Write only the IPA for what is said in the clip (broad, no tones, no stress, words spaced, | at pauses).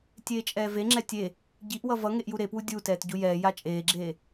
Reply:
tʲeːt͡ʃʼɛːveŋ͡ǁɛ tʲe | ɟiʔwʌ vʌ ŋeʔjuɾepwu dʲutɛːt ɟujɛːja t͡ʃʼeːɡ͡ǁeː